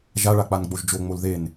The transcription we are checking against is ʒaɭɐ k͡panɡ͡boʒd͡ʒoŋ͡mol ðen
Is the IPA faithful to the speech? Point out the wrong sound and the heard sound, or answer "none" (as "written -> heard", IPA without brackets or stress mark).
ɐ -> a